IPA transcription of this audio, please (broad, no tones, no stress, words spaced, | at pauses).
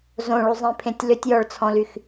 zõɭuzˤĩpʰẽtʲ lʏtʲjɔɭt͡sʰɔ̃lyx